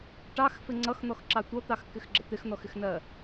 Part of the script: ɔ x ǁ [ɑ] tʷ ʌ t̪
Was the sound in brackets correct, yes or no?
yes